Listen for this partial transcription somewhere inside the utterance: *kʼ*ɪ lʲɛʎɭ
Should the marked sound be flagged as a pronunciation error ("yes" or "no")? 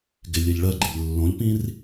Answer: yes